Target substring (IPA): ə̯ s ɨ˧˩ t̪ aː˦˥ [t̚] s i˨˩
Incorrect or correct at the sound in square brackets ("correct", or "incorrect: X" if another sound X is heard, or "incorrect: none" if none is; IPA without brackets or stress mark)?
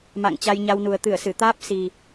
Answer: incorrect: p̚